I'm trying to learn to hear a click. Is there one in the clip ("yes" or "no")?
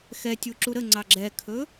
yes